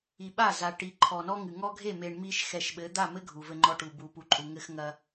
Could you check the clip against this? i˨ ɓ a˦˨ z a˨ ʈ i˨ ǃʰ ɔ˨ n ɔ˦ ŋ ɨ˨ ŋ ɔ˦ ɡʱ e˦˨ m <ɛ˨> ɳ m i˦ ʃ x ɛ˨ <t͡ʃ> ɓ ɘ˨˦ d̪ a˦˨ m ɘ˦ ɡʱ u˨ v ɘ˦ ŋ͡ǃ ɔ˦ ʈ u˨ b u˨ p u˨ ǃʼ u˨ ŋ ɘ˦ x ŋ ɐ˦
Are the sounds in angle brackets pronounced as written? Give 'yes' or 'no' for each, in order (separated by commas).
no, no